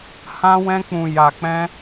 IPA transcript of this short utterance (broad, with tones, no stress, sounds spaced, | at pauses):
h ã˦ w ɛ̃˦ k͡p ũ˧ j a˧ k͡p ɛ̃˦